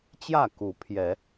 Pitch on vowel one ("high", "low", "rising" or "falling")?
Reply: falling